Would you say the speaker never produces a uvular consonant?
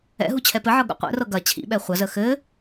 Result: no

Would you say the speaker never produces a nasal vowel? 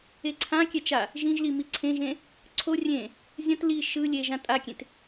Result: no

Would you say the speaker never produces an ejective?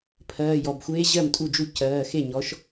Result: no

